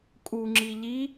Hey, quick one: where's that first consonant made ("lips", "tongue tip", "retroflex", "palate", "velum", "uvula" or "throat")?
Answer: velum